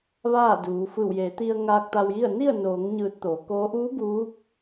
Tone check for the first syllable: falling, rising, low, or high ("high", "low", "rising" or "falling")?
falling